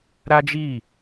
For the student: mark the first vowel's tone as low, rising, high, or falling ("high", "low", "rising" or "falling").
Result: high